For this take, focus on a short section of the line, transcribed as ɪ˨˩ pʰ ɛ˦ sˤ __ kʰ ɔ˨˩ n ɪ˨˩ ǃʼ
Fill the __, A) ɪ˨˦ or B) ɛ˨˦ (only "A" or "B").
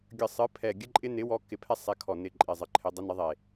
B